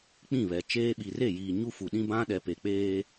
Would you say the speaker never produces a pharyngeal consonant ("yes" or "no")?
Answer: yes